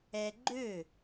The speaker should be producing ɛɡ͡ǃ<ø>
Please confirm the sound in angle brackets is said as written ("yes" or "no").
yes